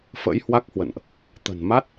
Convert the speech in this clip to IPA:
fə̰˧˥jhwa˦˥k̚hwə̰˧˨nʔ | t̪ə̤˨˩nma˦˥t̚

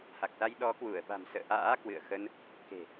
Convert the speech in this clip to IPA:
ha˨˩k̚sa˧j ɗɔ˨˦kwu˧˩ə̯ɓa̤˨˩msə̰ː˧˨ ʔa̰ː˧˥kwɨ̰˧˨ə̯xə˧n | ke̤˨˩

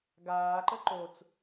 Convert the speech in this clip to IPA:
ɡaːǃə ǃot͡s

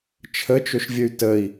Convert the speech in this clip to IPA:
t͡ʃʰət͡ʃɵʃvʲəy̯ təi̯

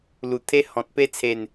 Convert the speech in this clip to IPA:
lu˨˩t̪ʰe˦ hɔ̃˨t̚pe˦t͡sʰe˨˩n

